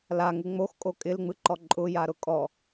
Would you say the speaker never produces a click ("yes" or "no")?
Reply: no